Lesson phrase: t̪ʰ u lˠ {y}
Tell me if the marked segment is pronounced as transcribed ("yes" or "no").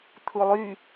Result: yes